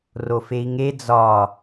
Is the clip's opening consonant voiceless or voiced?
voiced